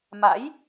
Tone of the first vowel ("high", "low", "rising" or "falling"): rising